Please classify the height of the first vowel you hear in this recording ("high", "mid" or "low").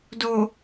mid